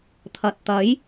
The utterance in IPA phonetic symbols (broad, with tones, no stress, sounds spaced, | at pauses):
t̪ʰ ɐ˨ t̚ t̪ ɐ˨˥ j